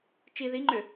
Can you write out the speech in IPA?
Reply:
t͡ʃi ðiŋ͡ǃʏ

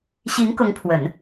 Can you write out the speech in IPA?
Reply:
ɕi˧˥ŋ kʊ˧˥ŋpʰwə˨˩˦n

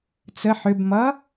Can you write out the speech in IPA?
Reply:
t͡sə ħʏbmʌ

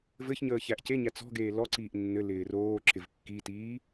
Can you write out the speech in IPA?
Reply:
vɘçɲəː çæʔceɲæ t͡sɔ̤ɡeː lɔǀiːʔ nːɘ lɪːroːǁɪv kːitiː

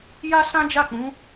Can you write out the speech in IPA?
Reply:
ja˦ sã˦ d͡ʒa˦˨k͡pũ˨˦

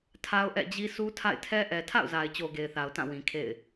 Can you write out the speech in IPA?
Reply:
tʰa˦ʊ̯ʔɛ̰˦˨d͡ʑi˦ su˦tʰa̰˦˨ɪ̯tʰɛ˦ ʔɛ˨ tʰa̰˦˨ʊ̯za˨ɪ̯t͡ɕo˨ ɡe˨ɪ̯θa˨ʊ̯ tã˦˨wĩ˨ kʰḛ˦˨ɪ̯

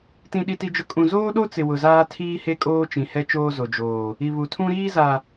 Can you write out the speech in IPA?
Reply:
tĩ˦ɗi˦ti˦d͡ʒʊ˦ kʼũ˨zoː˦ɗo˦t͡sɪ˨ wʊ˨zaː˦ tʰiː˦he˦ kʼoː˦t͡ʃĩ˨hɛ˦ t͡ʃoː˦zo˨ d͡ʒoː˨ | i˨ βu˨tʰũ˦ɾiː˦za˨

